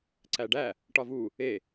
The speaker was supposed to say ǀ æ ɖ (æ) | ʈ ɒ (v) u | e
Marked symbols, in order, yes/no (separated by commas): yes, yes